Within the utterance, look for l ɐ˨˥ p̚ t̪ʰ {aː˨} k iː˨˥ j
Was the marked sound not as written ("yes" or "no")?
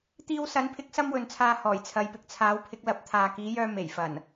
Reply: no